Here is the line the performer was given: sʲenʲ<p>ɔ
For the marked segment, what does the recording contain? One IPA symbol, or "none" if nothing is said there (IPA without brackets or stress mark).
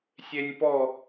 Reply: p